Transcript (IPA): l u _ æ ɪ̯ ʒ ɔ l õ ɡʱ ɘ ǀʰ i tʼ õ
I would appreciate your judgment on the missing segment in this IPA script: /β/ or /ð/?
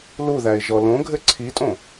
ð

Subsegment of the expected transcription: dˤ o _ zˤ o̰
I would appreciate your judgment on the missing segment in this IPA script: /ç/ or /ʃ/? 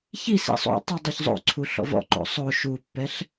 ç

